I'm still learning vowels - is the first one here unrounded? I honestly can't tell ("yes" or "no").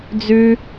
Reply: no